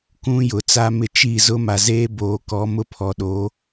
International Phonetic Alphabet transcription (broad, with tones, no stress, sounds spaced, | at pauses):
k ũ˦ j ʊ˨ t͡s a˦ m ɪ˦ t͡ʃ i˦˨ z ʊ˦ m a˨ z eː˦ b oː˨ k ɔ˨˦ m ʊ˦ pʰ ɔ˨ ɗ o˨˦